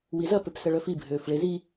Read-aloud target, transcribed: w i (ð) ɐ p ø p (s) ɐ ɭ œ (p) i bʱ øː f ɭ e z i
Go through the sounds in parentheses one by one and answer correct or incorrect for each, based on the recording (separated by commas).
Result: incorrect, correct, incorrect